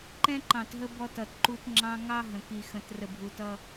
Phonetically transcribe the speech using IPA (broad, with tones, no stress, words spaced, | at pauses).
ǃɛ̃˦ǃɑ̃˨tɦə˦ bɔ˦t ʌ˨tǃu˦t ŋ͡ǁɑ̃˦ ŋɑ˦ ɦə̃˨ ki˨xə̃˨t rə˨bʱu˨tʌ˦